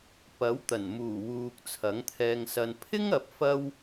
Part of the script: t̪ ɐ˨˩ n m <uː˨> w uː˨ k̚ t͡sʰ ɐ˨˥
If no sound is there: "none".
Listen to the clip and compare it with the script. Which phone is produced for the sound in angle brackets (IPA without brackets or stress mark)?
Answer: uː˨˩